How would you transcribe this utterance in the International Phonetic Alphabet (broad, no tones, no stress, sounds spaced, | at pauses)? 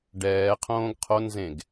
ɖ ɛː qʰ õː ɡ qʰ o n z ẽ ɡ